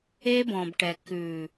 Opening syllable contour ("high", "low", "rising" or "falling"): high